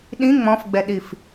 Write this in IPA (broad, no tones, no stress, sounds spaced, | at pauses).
ɗ ĩ ŋ͡m ɔ̃ f ɡ͡b ɛ ɗ i f